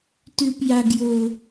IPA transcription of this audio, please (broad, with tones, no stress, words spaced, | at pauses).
tʉ˨p ja˨ɡjo˨